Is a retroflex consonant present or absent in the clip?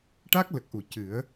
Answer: present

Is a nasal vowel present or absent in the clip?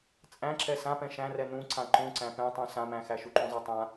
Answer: present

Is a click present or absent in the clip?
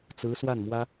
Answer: absent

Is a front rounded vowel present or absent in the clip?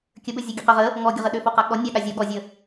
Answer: present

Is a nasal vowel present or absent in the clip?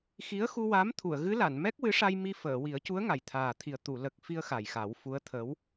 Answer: absent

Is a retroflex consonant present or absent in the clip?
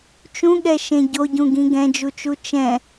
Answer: absent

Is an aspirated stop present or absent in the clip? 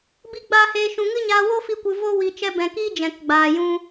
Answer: absent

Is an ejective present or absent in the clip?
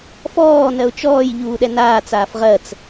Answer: absent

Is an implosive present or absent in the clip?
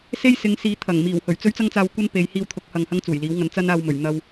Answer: absent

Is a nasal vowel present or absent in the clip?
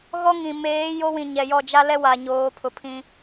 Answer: present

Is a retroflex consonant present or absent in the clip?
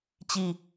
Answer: absent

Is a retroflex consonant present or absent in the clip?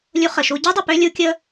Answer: absent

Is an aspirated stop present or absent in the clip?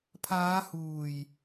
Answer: present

